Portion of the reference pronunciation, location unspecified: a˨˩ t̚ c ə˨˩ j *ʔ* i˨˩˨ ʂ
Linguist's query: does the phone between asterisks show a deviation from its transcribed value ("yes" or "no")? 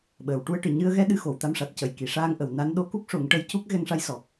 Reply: yes